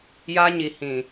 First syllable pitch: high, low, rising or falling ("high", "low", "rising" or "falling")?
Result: high